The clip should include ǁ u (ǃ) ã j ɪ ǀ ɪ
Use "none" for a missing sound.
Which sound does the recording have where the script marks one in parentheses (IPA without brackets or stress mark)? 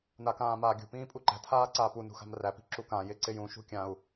k